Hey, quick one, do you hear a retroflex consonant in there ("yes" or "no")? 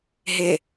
no